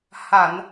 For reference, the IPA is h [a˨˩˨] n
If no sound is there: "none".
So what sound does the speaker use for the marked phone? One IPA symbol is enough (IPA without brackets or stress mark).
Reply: a˨˩˨